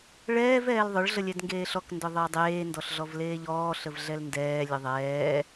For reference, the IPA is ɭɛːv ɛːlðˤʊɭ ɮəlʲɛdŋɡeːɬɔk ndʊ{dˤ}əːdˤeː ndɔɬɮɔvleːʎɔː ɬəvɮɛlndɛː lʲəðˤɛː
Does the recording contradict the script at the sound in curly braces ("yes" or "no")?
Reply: yes